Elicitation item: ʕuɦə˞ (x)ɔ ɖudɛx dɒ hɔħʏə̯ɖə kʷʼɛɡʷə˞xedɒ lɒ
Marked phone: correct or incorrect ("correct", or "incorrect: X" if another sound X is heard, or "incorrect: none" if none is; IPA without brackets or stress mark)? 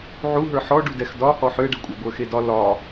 incorrect: ħ